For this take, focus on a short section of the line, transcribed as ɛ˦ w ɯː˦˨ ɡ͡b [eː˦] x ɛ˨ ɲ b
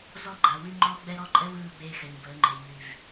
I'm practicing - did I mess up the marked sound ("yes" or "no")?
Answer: no